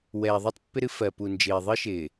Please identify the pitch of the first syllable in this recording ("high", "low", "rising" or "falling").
low